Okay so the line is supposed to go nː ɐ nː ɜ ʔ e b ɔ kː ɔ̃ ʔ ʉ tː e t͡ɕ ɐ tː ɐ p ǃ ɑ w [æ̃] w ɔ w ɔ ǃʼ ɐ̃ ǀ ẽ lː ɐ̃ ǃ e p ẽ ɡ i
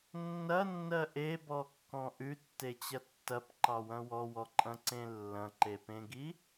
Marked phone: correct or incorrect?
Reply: incorrect